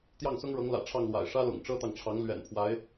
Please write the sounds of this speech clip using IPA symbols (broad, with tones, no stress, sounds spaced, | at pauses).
t̪ j ɑ˥˩ ŋ s ʊ˥ ŋ ɻ ɤ˧˥ ŋ l ä̰˨˩ ʈ͡ʂʰ ɑ˥˩ ŋ l w a̰˨˩ ɪ̯ ʂ ä˥ l ʊ̰˨˩ ŋ ʈ͡ʂ ɤ˥ t̪ ɑ˨ ŋ ʈ͡ʂʰ ɑ˧˥ ŋ l ɥ ɛ̰˨˩ n pʰ w a˧˥ ɪ̯